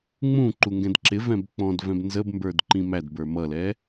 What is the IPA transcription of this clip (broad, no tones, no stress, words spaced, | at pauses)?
ŋ͡mũǃu ŋɡɛ̃dǁɪvɛ̃b k͡pɔ̃dvɛ̃b nzəbmbə˞d ǃĩmædbə˞ mʌlɛ